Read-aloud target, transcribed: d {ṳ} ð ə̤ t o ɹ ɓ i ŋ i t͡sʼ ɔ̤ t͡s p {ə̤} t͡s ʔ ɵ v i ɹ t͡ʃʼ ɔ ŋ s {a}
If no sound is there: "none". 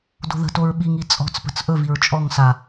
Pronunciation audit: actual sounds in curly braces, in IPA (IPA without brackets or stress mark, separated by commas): o̤, ə̤, a